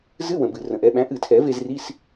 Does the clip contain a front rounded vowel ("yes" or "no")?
no